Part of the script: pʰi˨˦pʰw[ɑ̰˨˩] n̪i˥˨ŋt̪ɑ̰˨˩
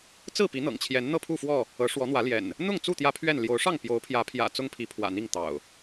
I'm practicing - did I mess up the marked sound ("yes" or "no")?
yes